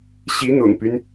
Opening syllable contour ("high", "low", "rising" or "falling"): rising